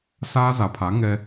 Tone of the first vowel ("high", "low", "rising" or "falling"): high